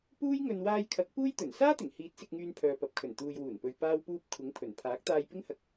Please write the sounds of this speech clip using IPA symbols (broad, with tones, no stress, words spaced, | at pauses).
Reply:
puː˥jŋɵ˧n waː˧jkʰɐ˨˥k̚ puː˥jt̪ɵ˨˩n saː˥t̪ɪ˨˩ŋhiː˨˥t̚ sɪ˧k̚ŋyː˧n pʰœː˨pɐ˨p̚kʰɵ˨˩n t̪uː˨jwuː˨˩npɵ˨ɥ paː˥wpuː˥p̚ kʷʰɪ˨˥ŋpʰɵ˨˩n pʰaː˨˥k̚t̪aː˧jpɪ˥ŋhɐ˧k̚